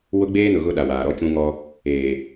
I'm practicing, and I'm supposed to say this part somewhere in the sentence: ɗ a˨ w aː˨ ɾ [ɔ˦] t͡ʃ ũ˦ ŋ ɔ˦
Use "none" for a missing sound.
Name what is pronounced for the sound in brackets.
ɔ˦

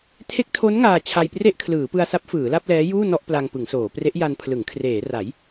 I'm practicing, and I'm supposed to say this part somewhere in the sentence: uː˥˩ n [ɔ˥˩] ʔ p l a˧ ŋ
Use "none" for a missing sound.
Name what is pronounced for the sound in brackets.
ɔ˥˩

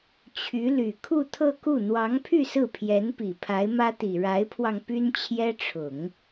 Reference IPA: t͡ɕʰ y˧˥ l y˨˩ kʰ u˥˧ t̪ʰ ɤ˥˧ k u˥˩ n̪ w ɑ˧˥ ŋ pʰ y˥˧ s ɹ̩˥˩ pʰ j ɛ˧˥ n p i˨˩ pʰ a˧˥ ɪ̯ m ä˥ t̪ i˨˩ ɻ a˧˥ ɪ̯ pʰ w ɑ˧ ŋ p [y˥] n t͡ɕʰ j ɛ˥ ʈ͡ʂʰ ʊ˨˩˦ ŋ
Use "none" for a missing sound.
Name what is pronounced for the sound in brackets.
y˥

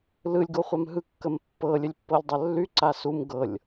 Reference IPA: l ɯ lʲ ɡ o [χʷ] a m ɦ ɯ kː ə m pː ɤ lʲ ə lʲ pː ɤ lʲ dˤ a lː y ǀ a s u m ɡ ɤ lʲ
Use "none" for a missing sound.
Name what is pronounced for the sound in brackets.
χʷ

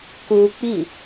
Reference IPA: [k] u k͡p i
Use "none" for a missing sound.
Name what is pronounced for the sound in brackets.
k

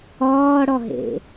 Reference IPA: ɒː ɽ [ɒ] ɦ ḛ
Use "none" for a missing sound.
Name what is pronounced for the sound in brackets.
ɒ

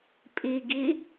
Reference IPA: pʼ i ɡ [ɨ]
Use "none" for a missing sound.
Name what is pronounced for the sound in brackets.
i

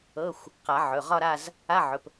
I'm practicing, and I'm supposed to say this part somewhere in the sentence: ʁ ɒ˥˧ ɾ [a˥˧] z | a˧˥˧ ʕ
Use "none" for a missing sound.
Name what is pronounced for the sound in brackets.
a˥˧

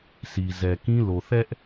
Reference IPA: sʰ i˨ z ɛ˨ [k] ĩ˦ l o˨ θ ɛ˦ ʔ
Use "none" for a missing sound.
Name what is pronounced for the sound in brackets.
k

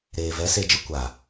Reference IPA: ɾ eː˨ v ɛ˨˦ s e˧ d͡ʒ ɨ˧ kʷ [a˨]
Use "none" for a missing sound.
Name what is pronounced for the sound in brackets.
a˨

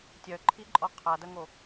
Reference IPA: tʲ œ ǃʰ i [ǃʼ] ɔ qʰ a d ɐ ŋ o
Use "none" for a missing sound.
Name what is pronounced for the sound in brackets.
ǃʼ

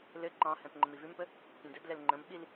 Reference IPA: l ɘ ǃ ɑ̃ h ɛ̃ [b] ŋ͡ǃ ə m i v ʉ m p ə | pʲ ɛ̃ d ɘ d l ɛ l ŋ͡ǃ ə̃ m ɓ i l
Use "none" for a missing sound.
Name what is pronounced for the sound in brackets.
p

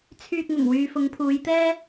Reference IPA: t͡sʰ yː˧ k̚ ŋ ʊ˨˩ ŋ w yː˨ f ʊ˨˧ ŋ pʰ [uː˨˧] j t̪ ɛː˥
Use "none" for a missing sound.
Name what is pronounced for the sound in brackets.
uː˨˧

